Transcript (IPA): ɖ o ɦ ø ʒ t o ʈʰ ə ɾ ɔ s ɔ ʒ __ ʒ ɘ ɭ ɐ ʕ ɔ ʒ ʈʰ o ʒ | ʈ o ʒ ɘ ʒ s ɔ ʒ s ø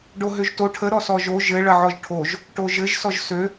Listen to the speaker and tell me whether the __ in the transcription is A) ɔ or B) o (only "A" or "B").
B